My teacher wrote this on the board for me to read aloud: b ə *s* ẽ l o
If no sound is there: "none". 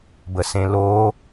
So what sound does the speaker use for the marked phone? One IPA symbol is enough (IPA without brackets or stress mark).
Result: s